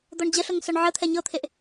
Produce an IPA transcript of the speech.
d̪ ɔ ɳ d͡ʑ ə ɬ ɤ ŋ s ɔ ɳ ʕ ə t̪ʰ ɛ ɲ ɤ t̪ʰ e ʔ

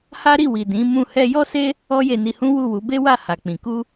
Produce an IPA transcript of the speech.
h a˦ ɾ i˦˨ w i˨ d ĩ˨˦ m ũ˦˨ h ɛ˧ j ɔ˦ s e˦ | ɔ˦ j e˧ n i˧ h ũ˦ w u˦˨ w u˨˦ b e˦ w a˦˨ h a˨ k͡p ĩ˨ k u˧

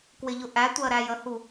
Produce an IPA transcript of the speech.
k w ɪ ʎ ʊ ʔ æ tʷ ɜ ɾ æ j ə h u

